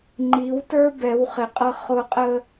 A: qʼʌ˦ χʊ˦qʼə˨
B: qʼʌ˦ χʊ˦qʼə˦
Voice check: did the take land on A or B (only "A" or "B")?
B